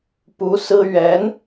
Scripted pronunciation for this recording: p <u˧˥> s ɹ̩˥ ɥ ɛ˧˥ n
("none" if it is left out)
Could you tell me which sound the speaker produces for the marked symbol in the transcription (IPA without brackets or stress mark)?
u˧˥